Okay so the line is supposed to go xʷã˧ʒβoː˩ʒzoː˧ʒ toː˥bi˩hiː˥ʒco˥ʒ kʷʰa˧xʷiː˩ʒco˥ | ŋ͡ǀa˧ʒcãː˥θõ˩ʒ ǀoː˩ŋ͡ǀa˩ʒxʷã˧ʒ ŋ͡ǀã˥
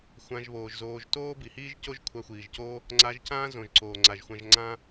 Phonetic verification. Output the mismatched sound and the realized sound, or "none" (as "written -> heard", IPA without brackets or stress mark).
θ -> z